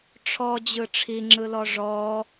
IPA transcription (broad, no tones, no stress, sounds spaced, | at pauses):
ʈ͡ʂʰ ɔ d͡ʑ ɯ ʈ͡ʂʰ i ŋ͡ǁ ɯ l ɔ ʐ ɔ